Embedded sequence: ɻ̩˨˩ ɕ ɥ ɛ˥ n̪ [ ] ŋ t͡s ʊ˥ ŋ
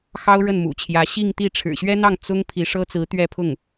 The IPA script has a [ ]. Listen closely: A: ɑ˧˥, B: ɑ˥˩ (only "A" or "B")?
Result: B